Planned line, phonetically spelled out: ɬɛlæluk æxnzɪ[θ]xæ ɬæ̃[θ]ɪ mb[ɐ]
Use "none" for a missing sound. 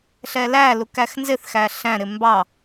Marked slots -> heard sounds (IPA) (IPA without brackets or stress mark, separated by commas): θ, ɾ, ɑ